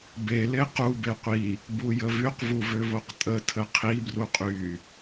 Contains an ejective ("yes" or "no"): yes